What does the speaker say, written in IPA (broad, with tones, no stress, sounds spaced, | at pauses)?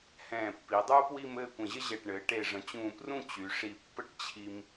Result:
h ɛ̃ː˧˩ pː i˩˧ dˤ uː˥ p w i˥˧ m ɘː˥˧ kʷ ə̃˧˩ ʑ ə˥ ʑ ɛ˧˩ ʈ ɳ ɘː˩˧ ʈ e˧˩ ʐ ə̃˩˧ t͡ɕ ũː˧˩ p r ũ˥˧ t͡ɕ y˩˧ ʂ i˧˩ pː ə˥ ʈ t͡ɕʰ i˧ m